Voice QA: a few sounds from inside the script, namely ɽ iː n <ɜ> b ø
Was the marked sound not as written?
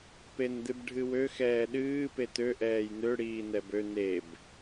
yes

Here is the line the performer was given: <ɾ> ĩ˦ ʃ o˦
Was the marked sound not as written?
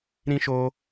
no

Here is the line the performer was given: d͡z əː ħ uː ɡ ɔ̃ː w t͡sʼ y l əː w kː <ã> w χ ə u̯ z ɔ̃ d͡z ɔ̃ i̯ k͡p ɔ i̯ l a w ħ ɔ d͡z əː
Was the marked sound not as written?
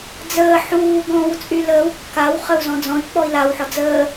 yes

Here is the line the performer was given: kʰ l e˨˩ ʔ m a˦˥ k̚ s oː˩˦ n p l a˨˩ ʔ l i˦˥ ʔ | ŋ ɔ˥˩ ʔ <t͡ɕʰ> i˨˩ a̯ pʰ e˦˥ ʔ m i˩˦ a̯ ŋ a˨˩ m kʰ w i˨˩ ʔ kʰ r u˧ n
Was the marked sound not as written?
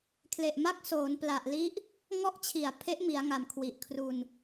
no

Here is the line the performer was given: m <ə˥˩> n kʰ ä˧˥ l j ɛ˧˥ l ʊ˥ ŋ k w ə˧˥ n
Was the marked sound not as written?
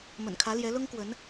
yes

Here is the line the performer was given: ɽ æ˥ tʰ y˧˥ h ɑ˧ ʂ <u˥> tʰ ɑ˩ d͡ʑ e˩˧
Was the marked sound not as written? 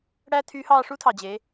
no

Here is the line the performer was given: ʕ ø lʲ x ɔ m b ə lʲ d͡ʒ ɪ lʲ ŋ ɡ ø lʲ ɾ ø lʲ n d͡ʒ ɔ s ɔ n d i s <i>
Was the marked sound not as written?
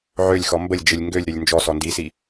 no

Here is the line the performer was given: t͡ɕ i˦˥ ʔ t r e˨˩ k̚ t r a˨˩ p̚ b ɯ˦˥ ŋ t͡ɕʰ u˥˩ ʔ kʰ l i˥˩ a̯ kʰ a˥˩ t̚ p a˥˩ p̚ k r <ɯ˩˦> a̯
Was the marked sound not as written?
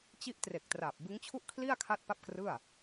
yes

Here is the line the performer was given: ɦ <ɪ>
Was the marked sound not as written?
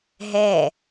yes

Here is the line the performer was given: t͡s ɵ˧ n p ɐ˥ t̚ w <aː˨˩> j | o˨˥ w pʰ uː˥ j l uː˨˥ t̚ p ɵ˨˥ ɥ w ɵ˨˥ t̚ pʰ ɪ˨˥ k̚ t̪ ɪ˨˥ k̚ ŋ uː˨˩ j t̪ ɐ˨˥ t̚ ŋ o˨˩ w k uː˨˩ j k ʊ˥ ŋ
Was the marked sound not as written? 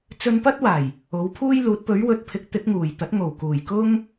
no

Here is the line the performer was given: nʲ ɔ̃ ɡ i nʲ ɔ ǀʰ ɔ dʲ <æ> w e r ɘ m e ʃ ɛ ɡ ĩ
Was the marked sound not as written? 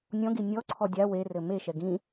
yes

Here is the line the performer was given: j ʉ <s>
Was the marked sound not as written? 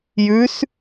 no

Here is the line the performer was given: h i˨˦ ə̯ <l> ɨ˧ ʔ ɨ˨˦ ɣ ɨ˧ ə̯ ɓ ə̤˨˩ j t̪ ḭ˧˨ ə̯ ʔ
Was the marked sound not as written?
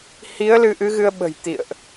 no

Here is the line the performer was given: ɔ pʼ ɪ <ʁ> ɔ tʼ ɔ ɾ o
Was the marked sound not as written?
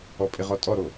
no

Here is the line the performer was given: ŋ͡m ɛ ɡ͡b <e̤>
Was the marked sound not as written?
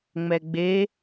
yes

